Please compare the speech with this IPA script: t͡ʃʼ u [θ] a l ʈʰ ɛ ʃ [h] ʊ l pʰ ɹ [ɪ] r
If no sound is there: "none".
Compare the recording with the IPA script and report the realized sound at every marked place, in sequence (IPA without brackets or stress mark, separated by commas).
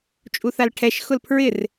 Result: θ, x, ɪ